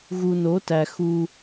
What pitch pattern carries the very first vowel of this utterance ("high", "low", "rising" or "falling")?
low